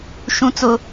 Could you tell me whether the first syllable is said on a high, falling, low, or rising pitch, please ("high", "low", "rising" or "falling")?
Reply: high